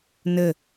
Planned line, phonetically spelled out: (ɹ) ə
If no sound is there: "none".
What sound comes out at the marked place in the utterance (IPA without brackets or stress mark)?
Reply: n